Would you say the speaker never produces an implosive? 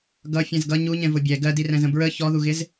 yes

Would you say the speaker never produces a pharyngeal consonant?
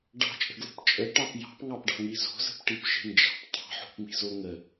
no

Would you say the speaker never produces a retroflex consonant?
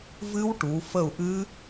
no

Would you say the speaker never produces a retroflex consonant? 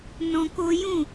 yes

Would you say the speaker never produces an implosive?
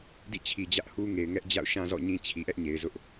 yes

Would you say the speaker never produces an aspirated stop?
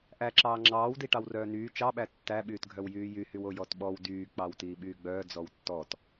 yes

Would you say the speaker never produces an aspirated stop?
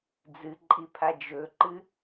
no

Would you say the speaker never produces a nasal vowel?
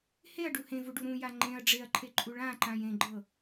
no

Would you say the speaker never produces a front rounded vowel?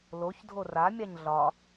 yes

